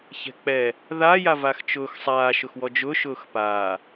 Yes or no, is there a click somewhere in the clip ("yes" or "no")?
no